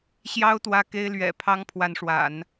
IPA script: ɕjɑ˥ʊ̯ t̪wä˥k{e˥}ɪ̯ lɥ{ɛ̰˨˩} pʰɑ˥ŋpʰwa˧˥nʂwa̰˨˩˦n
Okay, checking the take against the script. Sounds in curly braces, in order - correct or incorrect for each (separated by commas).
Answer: correct, correct